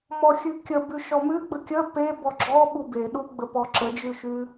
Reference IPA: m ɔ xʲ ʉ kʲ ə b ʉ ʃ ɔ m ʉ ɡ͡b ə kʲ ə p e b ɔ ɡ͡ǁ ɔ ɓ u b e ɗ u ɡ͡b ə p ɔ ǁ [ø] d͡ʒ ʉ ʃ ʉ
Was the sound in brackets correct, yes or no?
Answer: no